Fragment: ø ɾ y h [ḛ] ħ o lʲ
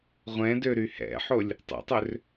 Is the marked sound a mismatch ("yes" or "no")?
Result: yes